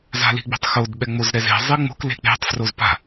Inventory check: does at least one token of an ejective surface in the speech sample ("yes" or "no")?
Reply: no